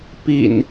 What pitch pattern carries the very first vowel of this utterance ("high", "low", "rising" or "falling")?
low